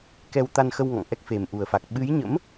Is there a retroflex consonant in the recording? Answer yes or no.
no